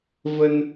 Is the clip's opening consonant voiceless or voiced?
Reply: voiced